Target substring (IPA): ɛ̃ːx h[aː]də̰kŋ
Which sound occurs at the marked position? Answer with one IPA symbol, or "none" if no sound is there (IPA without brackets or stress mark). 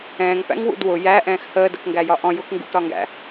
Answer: əː